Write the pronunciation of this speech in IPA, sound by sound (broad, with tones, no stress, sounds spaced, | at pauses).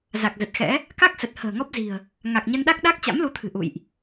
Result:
z a˨˩ k̚ z ə˨˩ t̚ x ɛ̰˧˥ | k a˦˥ k̚ s ə˨˩ t̚ h ə̤ː˨˩ ŋ ɔ˦˥ p̚ z i̤˨˩ ə̯ | ŋ a˨˩ k̚ ɲ ə˧ n ɗ a˦˥ k̚ ɗ a˦˥ k̚ t͡ɕ a̰˧˥ m l u˨˦ t̪ʰ ɨ̤˨˩ ʔ ṵ˧˨ j ʔ